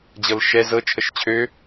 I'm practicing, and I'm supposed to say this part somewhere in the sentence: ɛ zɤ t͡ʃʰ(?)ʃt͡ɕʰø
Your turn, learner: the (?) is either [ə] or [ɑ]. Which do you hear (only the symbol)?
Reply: ə